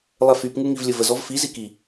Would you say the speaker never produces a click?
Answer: yes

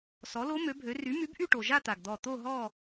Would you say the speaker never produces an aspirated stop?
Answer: yes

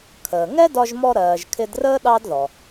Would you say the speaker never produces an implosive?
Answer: no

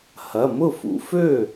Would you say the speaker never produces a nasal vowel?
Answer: yes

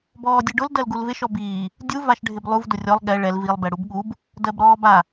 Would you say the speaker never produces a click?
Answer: yes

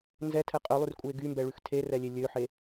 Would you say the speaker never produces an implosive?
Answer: yes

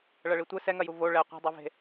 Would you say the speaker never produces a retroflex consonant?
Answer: no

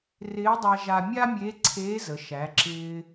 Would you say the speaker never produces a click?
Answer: no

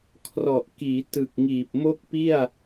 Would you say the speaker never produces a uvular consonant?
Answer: yes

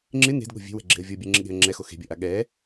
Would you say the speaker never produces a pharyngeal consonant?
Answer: yes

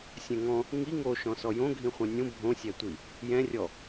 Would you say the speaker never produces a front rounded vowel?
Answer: yes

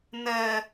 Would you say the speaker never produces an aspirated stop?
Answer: yes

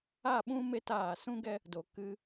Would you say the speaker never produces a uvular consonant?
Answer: yes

